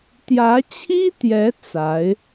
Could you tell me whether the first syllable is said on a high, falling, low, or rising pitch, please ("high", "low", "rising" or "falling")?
rising